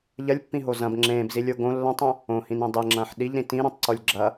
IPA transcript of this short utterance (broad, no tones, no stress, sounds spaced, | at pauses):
ʎ ɐ lʲ pː ĩ ɦ o z ɐ̃ b ŋ͡ǁ ẽː b z i lʲ o ɡ õ lː ɐ̃ tˤ õ | õ h ĩ n ẽ dˤ e ŋ͡ǁ ɐ̃ː ħ ɗ i ʎ ɾ ĩ t ĩ ɾ õ tˤ ǀ o lʲ ɡ͡ǁ ɐ